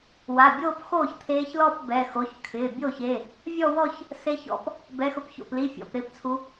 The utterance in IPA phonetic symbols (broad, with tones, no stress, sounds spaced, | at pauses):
w a˩˧˩ bʲ oː˥˧ p x oː˥˩ ç t̪ʰ eː˧˥ ç l ɔ˥˧ p b ɛ˩˧˩ x o˩˧˩ ç kʰ ɪː˩˧˩ bʲ o˥˩ ç e˩˧˩ | vʲ ɔ˥˧ w ɔ˥˧ ç | s e˧˥ ç ɔ̰˧˥ p | b ɛ˧˥˧ x ʊ˥˩ p ç o̰˥˩ p l i˧˥˧ fʲ ɔ̰˩˧˩ p ɾ ɪː˥˩ p t͡sʰ u˧˥